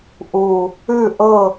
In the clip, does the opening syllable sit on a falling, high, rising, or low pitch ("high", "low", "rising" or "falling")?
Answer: low